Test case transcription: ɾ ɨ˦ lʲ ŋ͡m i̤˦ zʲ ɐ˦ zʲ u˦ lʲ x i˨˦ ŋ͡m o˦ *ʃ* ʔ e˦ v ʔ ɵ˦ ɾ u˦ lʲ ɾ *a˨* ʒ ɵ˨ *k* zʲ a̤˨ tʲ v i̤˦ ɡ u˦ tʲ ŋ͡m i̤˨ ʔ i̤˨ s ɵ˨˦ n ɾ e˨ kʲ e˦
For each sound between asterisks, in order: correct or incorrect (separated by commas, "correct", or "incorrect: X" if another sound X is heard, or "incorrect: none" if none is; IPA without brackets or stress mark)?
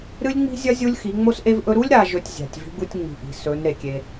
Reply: incorrect: s, correct, incorrect: tʲ